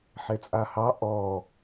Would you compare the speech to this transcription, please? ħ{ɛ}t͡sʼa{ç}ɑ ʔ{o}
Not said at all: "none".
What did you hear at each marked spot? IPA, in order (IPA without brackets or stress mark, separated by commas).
e, h, ɔ